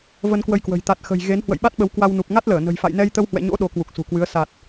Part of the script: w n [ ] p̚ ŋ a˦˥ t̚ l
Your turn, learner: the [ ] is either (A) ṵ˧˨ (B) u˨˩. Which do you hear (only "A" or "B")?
B